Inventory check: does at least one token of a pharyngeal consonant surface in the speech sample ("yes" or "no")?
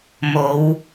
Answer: no